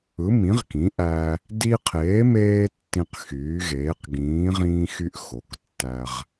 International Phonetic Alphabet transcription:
ɯ˩˥ m ĩ˩˥ ʁ k ĩ˩˥ ʔ æ˧ | d i˧ qʰ eː˩˥ m eː˧ tː ĩ˧ q x yː˩˥ ɣ eː˩˥ q ɡ ĩː˩˥ ʁ ĩː˧ x y˧ ʔ x o˩˥ k tː æ˧ ʁ

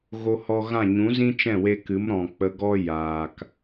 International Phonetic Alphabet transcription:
ɣ o˧ h ɔ˧ ɣ ã˦˨ ɲ ũ˨˦ z ĩ˦ t͡ʃ ɛ̃˦˨ w e˧ k ɨ˨˦ m ɾ ɔ̃˨ k͡p ə˧ ɡ ɔ˦ j aː˨ k

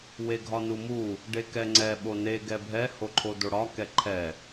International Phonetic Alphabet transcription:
w e ɡʱ ɒ n u m u | ɖ e k ɛ ŋ͡ǀ ɛ ɓ o n e ɡ ɛ bʱ ɛ h o ǃʰ o d o ɽ ɒ k ɛ ǃʰ ɛ

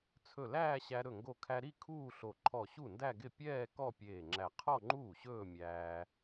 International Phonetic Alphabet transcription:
t͡sʰ ɵ˧˩ l æː˥˧ ɕ æ˧ ɾ ɵ˧˩ ŋ ɡ o˧˩ kʰ æ˧ ɾ i˥˧ kʰ uː˥˧ ɬ o˧˩ ǃʰ ɔ˧˩ ɕ u˥˩ n d æ˥˧ ɡ ɪ˥˩ pʲ ɛː˥˧ k ɔ˥˧ pʲ eː˧˩ ŋ͡ǁ æ˧˩ qʰ ɔ˥˧ ŋ͡ǃ uː˥˩ ɕ ɵː˥˧ mʲ æː˧

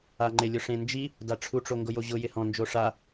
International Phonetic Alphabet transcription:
a ŋ͡ǃ ɪ lʲ ʊ ʂ ẽ n d͡ʒ i | d a ʈ͡ʂʰ u ʈ͡ʂ o ŋ ɡ ʊ j o ʑ ʊ j ɪ h ɔ̃ n d͡ʒ o ʂ a

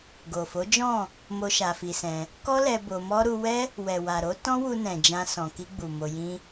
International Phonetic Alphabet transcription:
ɡ o˨ f o˨˦ d͡ʒ ɔ̃˦˨ | m o˦ ʃ a˧ f i˧ s ɛ̃˧ | k ɔ˦ l ɛ˧ b o˧ m ɔ˦ ɾ u˧ w ɛ˦ | w ɛ˨ w a˨ ɾ o˨˦ t ɔ̃˦ w u˧ n ɛ̃˨ d͡ʒ ã˧ s ɔ̃˨ k i˧ ɡ͡b u˨ m o˧ j ĩ˦

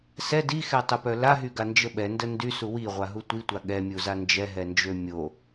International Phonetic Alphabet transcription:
s ɛ d i x ɛ tˤ ə p œ l a ɦ y ɡ a n d͡ʒ ə ɓ ɛ n d ə n d y s u w i ʁʷ a ɦ u tʷ i tʷ a ɠ ɛ mʲ u z a n d͡ʒ ɛ ɦ ɛ n d͡ʒ ø mʲ o

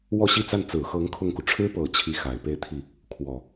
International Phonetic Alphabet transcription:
w ɔ˥˧ ɕ i˥˧ t͡s a˥˩ n t͡s ɹ̩˨˩ x ɤ˧˥ ŋ kʰ ʊ˥˩ ŋ k u˩ ʈ͡ʂʰ ɻ̩˥ p ɤ˨˩ t͡ɕʰ i˥˩ x a˨˩ ɪ̯ p e˥˧ ɪ̯ t̪ʰ i˥˩ | kʰ w ɔ˨˩˦

